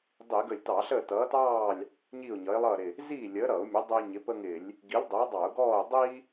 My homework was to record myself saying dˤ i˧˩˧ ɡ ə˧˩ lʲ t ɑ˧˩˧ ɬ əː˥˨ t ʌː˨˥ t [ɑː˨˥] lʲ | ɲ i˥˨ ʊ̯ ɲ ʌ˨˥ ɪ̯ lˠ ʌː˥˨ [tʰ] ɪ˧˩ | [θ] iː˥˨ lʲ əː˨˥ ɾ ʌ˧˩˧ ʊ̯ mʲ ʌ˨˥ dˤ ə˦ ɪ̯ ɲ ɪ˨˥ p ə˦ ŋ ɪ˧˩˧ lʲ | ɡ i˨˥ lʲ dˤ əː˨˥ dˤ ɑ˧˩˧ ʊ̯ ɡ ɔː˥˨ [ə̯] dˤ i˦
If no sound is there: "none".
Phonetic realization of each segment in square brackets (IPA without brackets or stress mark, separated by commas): ɑː˥˨, ɾ, z, ʊ̯